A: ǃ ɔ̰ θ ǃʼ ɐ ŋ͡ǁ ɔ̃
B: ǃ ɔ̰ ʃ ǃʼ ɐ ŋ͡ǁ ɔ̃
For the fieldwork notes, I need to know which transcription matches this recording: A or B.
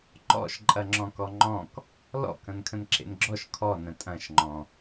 B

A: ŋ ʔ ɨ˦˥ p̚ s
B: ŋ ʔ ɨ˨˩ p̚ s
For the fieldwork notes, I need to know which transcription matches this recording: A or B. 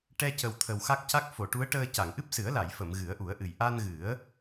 A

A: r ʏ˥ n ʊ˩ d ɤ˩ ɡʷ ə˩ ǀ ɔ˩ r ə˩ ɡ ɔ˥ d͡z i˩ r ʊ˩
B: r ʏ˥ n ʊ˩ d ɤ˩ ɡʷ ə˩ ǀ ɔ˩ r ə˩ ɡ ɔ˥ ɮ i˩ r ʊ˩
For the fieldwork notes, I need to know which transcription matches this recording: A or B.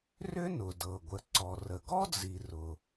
A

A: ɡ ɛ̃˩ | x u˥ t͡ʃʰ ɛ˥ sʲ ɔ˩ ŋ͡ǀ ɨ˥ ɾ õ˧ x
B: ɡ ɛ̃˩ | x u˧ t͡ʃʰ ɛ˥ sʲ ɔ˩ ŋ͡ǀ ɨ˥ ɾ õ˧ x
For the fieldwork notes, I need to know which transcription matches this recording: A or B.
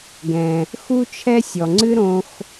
A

